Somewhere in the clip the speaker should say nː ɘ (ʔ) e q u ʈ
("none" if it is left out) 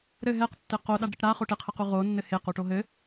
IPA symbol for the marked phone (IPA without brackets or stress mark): h